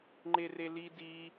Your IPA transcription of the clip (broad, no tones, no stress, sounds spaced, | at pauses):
ŋ͡ǃ e r e l i d i